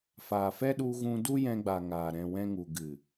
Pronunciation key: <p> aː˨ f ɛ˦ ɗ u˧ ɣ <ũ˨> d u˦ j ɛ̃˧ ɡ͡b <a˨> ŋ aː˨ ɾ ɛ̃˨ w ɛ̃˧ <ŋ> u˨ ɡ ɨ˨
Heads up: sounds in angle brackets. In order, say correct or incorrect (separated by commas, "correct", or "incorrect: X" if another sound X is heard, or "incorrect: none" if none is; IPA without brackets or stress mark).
incorrect: f, incorrect: ũ˧, correct, correct